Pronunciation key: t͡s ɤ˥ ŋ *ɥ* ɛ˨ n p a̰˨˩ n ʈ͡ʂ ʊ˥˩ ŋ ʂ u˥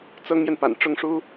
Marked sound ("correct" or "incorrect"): incorrect